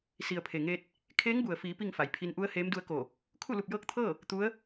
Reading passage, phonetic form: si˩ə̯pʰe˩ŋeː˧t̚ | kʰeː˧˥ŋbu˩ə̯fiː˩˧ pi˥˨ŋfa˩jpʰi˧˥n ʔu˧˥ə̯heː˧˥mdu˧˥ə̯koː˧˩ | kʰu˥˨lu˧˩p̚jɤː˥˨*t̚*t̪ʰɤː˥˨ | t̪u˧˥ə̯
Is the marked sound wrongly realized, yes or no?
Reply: yes